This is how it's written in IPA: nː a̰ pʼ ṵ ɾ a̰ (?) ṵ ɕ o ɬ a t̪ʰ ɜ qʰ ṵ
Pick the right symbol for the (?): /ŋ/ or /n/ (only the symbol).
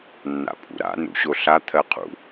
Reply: n